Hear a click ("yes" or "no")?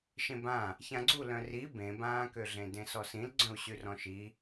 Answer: yes